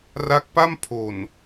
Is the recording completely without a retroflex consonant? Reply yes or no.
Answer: yes